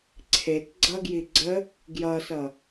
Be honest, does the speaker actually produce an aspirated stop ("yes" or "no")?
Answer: yes